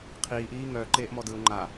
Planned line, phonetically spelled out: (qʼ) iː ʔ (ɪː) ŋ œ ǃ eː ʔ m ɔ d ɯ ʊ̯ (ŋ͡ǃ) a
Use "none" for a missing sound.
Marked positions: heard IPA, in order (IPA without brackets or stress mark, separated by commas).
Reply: qʰ, iː, ŋ͡ǃ